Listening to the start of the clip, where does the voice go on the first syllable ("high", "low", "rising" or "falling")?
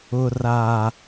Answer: low